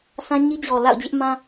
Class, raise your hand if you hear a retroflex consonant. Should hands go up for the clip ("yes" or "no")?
no